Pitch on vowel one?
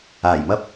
low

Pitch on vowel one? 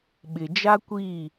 low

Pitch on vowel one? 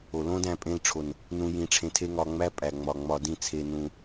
low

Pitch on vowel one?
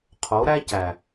rising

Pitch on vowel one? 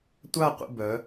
falling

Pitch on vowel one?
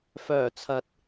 low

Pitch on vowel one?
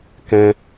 high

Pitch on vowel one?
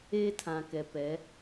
high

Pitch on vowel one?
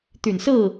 low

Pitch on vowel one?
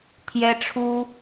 high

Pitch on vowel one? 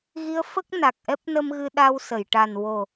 rising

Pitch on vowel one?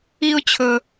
high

